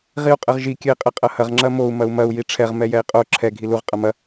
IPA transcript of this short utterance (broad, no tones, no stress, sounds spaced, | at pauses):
ʁ i u̯ qʼ ɘ ʁ ʒ i kʲ ɘ i̯ qʼ ɘ qʼ ɐ h ɐ ʁ ŋ͡ǁ ɐ m o u̯ m ɐ u̯ m ɐ u̯ j i ʈ͡ʂʰ ɛ ʁ m ɛ j ɛ i̯ qʼ o ǁʰ ɛ ɡʱ i l u ʁ qʼ ɐ m ɐ